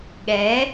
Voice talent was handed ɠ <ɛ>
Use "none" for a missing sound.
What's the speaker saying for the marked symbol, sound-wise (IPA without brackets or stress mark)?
ɛ